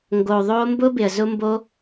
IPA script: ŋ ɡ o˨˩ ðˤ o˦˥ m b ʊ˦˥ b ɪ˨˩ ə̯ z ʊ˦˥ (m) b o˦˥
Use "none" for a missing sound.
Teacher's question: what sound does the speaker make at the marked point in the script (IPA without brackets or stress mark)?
m